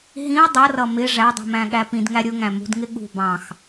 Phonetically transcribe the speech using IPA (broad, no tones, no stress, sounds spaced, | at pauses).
ɦ ĩ ɐ̯ dˤ ʌ r ʌ m ɪ ʐ æ dˤ i̤ m æ̃ ɠ æ p ĩ d ŋ æ ɾʲ ʊ ŋ æ̃ m ṳ d ŋ ɪ ɠ ṳ b ɑ̃ x